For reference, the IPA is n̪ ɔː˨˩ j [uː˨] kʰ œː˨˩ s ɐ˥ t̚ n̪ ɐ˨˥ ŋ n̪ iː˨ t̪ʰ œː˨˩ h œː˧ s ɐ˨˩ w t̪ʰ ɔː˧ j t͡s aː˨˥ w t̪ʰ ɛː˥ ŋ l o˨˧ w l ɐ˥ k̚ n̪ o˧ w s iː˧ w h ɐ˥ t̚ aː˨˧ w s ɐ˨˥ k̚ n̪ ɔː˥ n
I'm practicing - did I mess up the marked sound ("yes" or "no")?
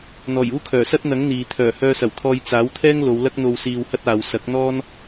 yes